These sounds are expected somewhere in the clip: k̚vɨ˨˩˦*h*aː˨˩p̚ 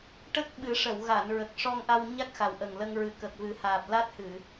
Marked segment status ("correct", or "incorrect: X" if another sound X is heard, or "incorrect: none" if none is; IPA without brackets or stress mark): correct